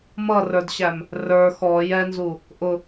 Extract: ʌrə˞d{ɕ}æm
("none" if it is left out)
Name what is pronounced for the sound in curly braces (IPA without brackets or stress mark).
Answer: ɕ